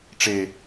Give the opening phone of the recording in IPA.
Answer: ʈ͡ʂ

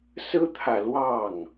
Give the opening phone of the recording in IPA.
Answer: s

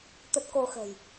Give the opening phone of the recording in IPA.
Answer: t̪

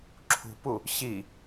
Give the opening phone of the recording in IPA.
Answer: ǁʰ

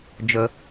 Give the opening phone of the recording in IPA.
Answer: d͡ʒ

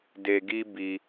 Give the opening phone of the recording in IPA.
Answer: d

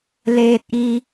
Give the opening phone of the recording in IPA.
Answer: l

